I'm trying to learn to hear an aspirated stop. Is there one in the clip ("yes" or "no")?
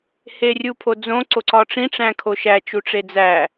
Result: yes